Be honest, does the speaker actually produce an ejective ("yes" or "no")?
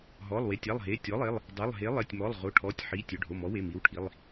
no